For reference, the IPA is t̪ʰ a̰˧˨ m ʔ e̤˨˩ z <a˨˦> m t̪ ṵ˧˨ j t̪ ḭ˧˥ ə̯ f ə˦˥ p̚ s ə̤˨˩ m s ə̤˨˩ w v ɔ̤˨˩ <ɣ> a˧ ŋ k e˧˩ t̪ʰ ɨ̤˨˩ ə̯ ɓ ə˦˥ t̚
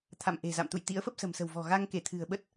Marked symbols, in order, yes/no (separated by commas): no, yes